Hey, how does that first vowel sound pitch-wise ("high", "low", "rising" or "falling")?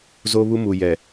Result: high